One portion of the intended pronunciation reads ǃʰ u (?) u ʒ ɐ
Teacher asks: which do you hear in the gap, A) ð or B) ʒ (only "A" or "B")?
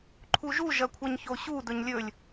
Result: B